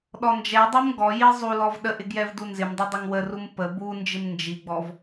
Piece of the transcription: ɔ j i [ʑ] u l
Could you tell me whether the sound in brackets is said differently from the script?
yes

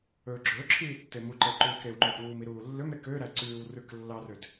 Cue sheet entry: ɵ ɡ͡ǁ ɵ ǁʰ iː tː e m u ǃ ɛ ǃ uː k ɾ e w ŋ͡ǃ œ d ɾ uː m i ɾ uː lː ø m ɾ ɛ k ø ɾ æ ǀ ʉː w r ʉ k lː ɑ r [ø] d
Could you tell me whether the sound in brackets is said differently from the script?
no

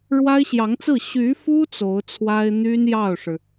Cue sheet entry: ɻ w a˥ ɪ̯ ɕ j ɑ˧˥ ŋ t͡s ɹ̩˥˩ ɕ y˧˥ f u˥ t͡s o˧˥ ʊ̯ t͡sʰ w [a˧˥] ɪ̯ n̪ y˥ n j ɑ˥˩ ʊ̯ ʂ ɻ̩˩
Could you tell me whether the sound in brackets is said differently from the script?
yes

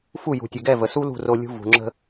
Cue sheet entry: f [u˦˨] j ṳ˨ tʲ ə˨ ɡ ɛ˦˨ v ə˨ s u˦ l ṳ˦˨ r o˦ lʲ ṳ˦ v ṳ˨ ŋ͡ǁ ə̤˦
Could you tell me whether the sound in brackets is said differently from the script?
no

